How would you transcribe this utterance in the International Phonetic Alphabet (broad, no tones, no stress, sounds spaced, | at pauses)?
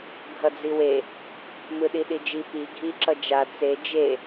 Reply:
ɡʱ ʌ d͡z i w e | m ɯ ɗ i ɗ i d͡ʒ i p i ɡʱ i ǁ ʌ d͡ʒ a t͡s e d͡ʒ e